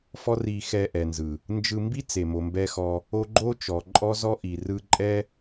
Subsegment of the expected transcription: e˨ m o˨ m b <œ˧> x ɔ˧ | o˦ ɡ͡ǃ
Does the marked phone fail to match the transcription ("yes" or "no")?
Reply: yes